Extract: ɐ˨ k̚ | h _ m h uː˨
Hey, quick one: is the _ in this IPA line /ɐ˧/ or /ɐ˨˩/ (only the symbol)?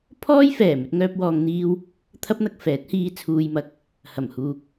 ɐ˨˩